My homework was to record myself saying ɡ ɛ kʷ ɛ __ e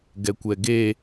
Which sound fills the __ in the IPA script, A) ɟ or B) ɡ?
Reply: B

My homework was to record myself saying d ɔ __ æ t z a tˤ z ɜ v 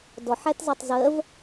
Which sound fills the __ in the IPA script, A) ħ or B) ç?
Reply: A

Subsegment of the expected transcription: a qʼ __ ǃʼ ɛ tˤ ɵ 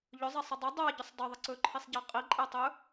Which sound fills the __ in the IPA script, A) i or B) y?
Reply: A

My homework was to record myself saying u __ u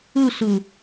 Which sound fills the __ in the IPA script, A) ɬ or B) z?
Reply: A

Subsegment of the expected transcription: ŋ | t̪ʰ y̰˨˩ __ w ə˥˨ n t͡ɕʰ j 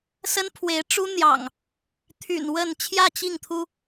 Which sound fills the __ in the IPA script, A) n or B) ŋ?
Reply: A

